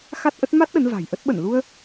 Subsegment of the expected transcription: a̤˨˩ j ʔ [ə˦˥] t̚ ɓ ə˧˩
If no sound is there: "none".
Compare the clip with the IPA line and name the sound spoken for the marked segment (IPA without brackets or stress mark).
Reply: ə˦˥